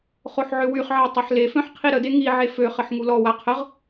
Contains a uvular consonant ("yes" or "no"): yes